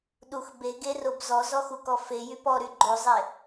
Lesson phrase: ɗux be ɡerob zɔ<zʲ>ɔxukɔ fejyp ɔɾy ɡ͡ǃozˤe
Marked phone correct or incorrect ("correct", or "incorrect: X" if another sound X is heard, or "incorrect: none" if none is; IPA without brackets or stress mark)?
incorrect: z